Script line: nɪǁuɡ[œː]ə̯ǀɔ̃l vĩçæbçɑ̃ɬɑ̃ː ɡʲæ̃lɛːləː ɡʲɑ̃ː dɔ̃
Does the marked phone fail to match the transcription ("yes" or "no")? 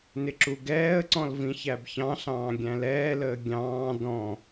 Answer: yes